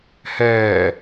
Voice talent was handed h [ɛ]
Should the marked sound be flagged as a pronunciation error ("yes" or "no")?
yes